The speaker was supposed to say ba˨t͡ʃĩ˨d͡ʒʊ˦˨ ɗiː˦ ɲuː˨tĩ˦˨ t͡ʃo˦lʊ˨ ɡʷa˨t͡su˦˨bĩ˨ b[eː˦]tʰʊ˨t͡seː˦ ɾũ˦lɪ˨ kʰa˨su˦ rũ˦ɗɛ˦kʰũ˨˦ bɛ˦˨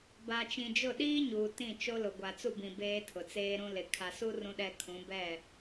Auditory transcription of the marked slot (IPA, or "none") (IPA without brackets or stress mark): eː˦